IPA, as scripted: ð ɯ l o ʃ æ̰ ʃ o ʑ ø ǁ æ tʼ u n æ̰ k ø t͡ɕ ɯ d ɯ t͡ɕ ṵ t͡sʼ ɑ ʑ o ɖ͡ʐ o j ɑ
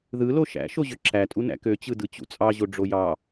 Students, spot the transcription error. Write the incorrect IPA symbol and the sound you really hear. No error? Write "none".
none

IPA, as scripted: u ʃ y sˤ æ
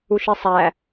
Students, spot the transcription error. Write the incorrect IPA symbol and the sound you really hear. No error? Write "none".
y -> i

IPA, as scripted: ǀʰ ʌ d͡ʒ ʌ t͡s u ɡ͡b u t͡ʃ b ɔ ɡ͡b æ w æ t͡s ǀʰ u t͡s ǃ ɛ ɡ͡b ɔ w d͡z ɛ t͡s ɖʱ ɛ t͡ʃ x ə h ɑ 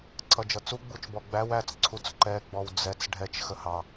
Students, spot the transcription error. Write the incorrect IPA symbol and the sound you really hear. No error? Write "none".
none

